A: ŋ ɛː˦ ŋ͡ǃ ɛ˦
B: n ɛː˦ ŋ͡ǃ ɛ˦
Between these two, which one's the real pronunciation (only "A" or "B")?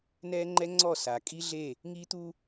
B